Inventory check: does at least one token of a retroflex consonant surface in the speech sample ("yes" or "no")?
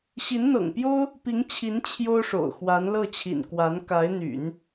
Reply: yes